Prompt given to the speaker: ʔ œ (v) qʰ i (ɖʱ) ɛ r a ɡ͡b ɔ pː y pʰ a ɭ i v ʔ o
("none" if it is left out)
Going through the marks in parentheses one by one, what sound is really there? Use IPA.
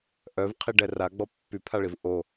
v, ɖ

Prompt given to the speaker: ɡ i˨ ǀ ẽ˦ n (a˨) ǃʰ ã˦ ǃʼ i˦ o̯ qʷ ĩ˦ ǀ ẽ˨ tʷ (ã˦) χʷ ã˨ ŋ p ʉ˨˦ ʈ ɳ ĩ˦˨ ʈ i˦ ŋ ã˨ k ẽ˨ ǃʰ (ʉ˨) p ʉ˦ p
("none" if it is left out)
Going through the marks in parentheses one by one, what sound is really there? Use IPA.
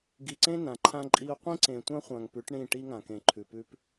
ã˨, ã˦, ʉ˨

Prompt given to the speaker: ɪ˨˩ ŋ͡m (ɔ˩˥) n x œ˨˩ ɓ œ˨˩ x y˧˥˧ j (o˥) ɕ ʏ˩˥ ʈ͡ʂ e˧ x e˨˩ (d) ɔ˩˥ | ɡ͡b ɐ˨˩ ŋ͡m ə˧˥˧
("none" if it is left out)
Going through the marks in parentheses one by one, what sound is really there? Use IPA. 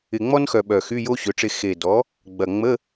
ɔ˥, o˥, d

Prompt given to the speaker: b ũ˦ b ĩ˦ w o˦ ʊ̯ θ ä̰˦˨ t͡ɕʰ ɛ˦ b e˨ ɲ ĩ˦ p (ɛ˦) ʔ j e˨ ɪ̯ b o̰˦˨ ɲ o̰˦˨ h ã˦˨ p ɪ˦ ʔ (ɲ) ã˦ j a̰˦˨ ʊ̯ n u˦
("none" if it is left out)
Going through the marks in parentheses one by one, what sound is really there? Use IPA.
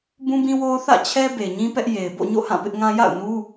ɛ˦, ŋ

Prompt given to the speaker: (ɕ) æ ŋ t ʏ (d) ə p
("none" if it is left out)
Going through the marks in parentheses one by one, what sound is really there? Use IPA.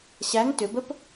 ɕ, b

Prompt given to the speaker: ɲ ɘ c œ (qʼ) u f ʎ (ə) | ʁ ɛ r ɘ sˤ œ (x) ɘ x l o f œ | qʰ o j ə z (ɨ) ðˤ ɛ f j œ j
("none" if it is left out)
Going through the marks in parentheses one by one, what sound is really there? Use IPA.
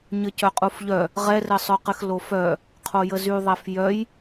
qʼ, œ, q, y

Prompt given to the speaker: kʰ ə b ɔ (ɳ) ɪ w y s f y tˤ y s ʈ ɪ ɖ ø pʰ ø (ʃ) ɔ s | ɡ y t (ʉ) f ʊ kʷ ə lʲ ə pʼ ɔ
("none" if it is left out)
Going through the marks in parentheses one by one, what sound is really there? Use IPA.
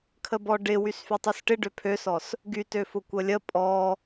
ɖ, s, ø

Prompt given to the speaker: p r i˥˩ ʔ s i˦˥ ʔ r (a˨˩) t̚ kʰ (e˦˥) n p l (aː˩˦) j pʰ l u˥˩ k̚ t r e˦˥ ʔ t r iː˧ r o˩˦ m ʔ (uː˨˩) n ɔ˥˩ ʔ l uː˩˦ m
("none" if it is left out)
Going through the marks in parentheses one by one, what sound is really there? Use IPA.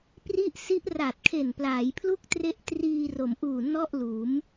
a˨˩, e˨˩, aː˩˦, uː˨˩

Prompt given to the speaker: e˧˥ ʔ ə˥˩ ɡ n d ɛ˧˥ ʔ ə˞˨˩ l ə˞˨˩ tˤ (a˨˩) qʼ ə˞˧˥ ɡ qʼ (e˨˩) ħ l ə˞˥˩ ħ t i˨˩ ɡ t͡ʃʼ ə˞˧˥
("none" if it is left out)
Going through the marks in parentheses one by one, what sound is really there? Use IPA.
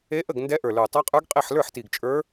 a˧˥, e˥˩

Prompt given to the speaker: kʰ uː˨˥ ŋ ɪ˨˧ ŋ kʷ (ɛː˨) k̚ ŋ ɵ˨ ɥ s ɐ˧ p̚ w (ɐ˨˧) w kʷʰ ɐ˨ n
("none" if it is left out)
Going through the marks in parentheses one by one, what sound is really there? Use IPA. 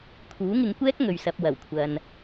ɛː˥, ɐ˨˩

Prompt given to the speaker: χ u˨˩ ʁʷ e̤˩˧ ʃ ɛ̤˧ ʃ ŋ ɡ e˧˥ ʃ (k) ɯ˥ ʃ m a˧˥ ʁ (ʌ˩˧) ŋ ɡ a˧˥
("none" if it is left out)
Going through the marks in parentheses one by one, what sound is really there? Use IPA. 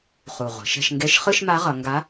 χ, ʌ˩˧

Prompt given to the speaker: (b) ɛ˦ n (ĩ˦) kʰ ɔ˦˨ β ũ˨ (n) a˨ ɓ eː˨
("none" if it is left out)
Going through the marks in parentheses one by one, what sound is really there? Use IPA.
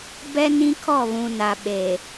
b, ĩ˦, n

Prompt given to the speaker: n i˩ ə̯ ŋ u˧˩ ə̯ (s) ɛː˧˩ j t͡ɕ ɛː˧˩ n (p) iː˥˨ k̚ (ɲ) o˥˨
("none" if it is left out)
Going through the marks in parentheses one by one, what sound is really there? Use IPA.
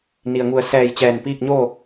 s, p, ɲ

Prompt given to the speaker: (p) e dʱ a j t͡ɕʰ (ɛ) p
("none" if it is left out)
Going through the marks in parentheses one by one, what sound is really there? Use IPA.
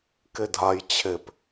k, e

